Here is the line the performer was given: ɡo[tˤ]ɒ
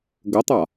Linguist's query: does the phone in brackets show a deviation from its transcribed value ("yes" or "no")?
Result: no